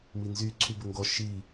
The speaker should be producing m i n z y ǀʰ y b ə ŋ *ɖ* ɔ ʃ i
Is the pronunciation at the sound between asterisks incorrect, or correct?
incorrect: ɡ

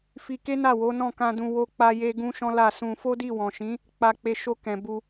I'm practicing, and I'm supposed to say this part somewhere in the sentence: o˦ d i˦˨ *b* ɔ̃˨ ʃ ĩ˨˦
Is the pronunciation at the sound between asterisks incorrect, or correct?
incorrect: w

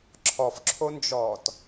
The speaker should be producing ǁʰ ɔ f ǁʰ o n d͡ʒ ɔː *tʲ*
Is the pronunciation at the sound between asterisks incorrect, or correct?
incorrect: t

